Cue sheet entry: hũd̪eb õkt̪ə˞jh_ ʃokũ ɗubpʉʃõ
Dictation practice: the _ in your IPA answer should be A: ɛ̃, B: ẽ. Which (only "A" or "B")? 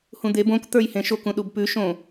B